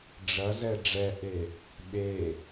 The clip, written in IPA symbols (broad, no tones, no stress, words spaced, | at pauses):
ɖ͡ʐɐzɛ ɖ͡ʐɛʔe | ɓe